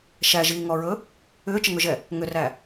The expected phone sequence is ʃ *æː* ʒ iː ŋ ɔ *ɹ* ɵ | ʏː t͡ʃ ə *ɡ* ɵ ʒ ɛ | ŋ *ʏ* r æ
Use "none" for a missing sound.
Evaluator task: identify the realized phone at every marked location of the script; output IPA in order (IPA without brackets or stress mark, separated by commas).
æ, ɹ, ŋ, ʏ